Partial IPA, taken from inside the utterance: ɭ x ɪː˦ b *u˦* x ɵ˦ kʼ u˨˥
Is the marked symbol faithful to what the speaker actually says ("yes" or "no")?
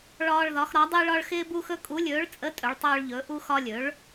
yes